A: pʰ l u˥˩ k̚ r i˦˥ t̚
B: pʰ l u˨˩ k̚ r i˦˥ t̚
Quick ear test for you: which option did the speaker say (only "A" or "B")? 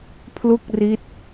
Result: A